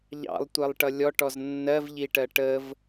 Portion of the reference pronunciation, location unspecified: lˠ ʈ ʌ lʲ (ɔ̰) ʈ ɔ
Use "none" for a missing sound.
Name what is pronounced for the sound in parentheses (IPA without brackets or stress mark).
ɔ